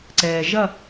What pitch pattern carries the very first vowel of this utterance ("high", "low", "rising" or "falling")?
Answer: low